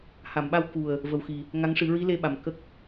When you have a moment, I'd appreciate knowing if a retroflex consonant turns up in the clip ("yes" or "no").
yes